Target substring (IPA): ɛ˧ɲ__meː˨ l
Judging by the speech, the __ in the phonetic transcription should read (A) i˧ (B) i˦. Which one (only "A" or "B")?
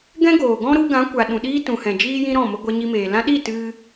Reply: A